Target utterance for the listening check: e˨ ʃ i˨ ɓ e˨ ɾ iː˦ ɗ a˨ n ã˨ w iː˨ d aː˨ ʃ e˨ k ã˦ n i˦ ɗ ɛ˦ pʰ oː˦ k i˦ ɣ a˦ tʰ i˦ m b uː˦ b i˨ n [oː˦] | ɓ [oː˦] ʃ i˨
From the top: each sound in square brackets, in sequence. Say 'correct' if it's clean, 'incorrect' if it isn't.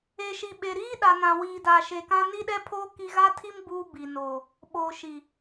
incorrect: oː˨, incorrect: oː˨

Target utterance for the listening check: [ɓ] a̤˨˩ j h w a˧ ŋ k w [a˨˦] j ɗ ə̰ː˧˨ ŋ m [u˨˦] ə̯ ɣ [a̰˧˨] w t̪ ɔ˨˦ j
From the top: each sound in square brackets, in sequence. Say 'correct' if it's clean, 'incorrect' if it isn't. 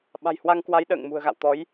correct, correct, incorrect: ṳ˨˩, correct

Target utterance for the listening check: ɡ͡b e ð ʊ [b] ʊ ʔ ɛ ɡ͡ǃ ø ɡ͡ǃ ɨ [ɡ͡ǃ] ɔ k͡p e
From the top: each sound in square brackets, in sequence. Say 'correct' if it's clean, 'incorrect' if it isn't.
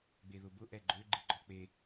correct, correct

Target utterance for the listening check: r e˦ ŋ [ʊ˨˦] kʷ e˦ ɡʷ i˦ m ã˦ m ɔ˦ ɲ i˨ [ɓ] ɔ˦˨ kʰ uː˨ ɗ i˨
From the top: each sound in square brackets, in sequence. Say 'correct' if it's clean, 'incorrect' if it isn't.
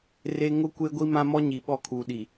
incorrect: ʊ˦, correct

